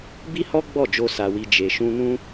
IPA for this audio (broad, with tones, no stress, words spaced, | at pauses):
bi˦hɔ˦ ɡ͡bɔ˦˨d͡ʒo˧ sa˨wi˨ d͡ʒe˨ʃũ˧nũ˦